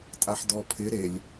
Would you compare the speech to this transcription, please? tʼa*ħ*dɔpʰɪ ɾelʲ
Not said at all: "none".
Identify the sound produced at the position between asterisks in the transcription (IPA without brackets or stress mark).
ħ